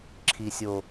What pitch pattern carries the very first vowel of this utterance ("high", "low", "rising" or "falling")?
low